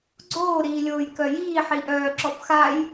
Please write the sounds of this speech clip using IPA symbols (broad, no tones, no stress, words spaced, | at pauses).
ɡ͡ǀoːɾiːlʲoːj kœjiː ħiʔœː ǁɔfxaj